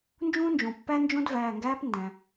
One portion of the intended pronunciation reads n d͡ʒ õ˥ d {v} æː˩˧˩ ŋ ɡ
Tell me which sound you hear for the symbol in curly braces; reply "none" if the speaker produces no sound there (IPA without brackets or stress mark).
v